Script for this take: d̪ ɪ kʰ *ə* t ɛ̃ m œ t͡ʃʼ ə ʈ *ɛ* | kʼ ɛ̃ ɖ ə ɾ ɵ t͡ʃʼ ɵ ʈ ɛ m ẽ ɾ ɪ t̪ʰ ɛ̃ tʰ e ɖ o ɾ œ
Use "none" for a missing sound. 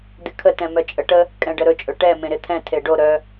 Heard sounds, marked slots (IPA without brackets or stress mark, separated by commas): ə, ə